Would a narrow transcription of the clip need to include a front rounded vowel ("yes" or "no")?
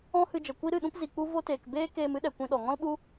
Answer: no